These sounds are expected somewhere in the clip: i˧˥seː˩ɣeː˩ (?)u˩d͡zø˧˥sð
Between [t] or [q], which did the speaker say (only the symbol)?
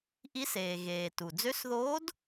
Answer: t